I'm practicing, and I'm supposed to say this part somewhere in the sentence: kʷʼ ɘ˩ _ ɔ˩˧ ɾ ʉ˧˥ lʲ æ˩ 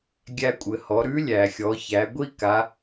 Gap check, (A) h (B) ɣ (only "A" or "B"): A